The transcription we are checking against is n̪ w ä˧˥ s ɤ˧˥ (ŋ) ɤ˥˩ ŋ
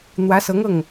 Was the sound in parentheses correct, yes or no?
yes